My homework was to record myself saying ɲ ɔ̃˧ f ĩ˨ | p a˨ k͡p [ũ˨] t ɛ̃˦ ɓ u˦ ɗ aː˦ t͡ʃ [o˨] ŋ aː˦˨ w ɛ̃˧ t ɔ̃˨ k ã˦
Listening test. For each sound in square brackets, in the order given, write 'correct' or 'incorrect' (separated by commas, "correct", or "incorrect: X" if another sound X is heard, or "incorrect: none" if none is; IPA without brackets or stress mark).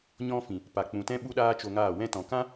correct, incorrect: o˧